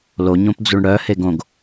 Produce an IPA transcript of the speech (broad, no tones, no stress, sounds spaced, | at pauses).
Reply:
l o ɲ õ p d͡z u ɳ ɽ œ h e ɡ õ ɡ